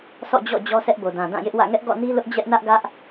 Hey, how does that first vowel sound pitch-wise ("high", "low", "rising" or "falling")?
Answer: falling